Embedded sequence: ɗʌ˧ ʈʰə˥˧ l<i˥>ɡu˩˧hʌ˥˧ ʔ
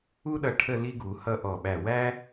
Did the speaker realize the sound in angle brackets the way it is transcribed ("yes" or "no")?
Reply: yes